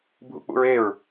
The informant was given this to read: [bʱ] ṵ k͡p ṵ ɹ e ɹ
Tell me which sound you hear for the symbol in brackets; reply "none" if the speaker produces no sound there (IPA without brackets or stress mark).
bʱ